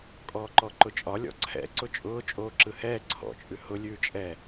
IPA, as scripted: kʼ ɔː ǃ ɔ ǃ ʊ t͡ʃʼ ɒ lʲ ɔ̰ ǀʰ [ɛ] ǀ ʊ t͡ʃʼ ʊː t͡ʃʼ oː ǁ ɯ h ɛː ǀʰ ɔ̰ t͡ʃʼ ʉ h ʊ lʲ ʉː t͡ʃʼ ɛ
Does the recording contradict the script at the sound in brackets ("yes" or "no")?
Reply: yes